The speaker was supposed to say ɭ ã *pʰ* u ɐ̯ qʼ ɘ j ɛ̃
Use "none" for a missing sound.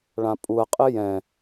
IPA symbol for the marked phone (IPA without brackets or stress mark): pʼ